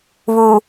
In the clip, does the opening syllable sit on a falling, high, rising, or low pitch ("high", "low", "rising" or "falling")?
low